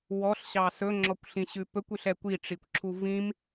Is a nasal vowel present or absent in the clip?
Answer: present